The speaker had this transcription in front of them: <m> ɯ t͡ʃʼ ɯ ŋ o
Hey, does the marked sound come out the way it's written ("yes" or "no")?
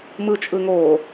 yes